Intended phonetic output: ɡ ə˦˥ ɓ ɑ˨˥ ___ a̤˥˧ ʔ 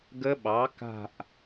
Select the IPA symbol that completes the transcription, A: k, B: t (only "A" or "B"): A